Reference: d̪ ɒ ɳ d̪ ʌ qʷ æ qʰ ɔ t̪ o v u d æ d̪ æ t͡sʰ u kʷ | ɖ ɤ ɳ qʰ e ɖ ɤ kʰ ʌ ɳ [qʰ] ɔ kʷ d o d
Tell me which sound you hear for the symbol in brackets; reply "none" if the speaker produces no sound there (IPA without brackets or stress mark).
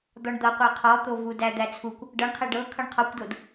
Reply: qʰ